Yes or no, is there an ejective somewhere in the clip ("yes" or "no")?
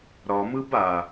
no